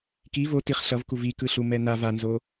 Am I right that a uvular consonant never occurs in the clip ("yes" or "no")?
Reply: no